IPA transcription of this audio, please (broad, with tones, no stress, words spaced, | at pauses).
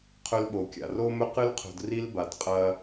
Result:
qʰɵ˦lɓo˨kʲa̰˨ ro˦mɵ˦qɨ˦lqʰo̤˨d ri˦lba˨d qʼɐ˦